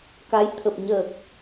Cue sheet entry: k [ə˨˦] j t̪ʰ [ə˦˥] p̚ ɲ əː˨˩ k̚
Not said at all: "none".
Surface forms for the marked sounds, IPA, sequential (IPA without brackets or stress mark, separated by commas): a˨˦, ə˨˩